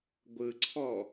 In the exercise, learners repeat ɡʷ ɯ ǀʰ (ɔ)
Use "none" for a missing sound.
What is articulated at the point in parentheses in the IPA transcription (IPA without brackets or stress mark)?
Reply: ɔ